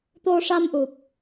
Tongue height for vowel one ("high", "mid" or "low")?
mid